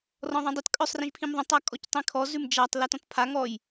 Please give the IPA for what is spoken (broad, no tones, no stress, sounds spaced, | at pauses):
r ɔ̃ ðˤ ĩ dˤ ə t kʼ œ sˤ r ĩ ʒ pʰ ĩ m ðˤ ə̃ tˤ a kʼ ɔ c tˤ ĩ kʰ ɔ z ʉ m d͡ʒ a tˤ l a t ɔ̃ t pʰ a ŋ ɔ j